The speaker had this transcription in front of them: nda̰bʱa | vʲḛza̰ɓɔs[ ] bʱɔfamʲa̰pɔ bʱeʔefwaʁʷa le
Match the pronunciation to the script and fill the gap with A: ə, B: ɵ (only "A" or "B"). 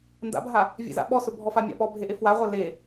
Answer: B